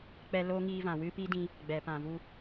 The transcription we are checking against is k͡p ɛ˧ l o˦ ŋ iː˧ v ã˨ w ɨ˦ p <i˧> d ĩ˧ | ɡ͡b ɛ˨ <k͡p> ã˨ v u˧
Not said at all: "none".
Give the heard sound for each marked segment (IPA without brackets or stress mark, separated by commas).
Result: i˦, p